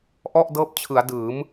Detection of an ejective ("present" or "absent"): absent